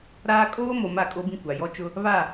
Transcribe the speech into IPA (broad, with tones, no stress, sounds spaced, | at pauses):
ɾ aː˦ kʼ oː˦ m o˨ m a˦˨ kʼ o˦ b ĩ˦ kʷ a˨ j ɔ˦ t͡ʃ ʊ˦ | β a˦˨